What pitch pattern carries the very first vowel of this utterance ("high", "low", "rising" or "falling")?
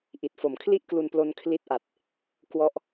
low